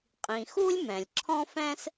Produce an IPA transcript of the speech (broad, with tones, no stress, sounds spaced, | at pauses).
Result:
qʼ ĩ˩ x u˥ lʲ m ɛ̃˩ lʲ ǁʰ ɔ̃˥ f ɛ̃˥ s